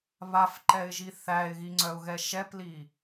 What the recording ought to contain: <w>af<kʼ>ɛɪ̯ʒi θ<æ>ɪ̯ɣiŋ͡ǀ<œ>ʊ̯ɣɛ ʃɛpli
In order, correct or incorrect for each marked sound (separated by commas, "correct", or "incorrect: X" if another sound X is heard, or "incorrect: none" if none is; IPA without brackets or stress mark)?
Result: incorrect: β, incorrect: ǃ, correct, correct